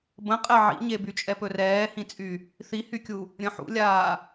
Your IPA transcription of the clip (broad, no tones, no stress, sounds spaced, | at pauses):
b ə̃ qʼ ɛ ʕ ḭ ɲ e b y t͡ʃʼ ɛ p ɵ r ɛː h ĩ t͡sʼ y | θ i h y kʲ u | ɾʲ ə̃ ħ ṵ lʲ aː